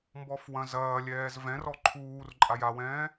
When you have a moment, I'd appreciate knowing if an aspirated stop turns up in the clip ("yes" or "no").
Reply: yes